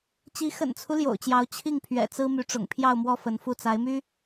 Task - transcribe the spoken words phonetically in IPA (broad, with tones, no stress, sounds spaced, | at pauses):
t͡ɕ i˧˥ x ə̰˨˩ n t͡sʰ u˦ l j o̰˨˩ ʊ̯ t͡ɕ j ɑ˧˥ ʊ̯ t͡ɕʰ i˥˩ ŋ pʰ ɥ ɛ̰˨˩ t͡s ɹ̩˥ m y˧˥ ʈ͡ʂ ʊ̰˨˩ ŋ pʰ j ɑ˥˧ ʊ̯ m w ɔ˥˩ f ə˧˥ n f u˥˩ t͡s a˧˥ ɪ̯ m y˥